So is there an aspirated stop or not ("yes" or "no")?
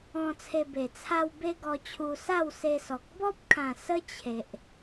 yes